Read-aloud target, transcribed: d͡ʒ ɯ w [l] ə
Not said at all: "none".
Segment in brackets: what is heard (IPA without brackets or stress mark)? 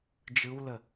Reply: l